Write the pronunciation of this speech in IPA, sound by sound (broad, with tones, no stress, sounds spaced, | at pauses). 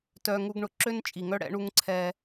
t œ˨ ŋ u˨ ɡ ɳ ʊ˨ ǁ ø˦ n t͡ʃʼ i˨ ŋ œ˦ ɽ ɛ̰˦ ɳ u˦ ŋ ǀʰ ɛ˦